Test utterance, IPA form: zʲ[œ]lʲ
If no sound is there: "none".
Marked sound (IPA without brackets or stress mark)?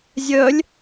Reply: œ